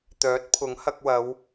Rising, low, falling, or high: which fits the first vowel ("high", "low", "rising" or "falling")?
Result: rising